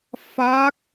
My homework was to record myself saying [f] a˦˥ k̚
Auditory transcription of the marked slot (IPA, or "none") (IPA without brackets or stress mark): f